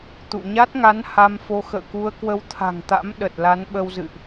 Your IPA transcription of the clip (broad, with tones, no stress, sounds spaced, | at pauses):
t̪ ṵ˧˨ ɲ a˦˥ t̚ ŋ a˨˦ n h a˧ m f o˧ x ə̰ː˧˨ k u˧ ə̯ k w ə˧ w t̪ʰ a̤˨˩ ŋ t̪ a̰˧˥ m ɗ ə˨˩ t̚ l a˨˦ n ɓ ə˧ w z ɨ̰˧˨ ʔ